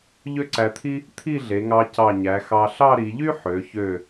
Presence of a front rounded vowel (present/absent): present